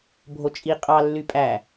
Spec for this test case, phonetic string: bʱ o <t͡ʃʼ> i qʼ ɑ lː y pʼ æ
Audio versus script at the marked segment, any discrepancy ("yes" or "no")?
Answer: no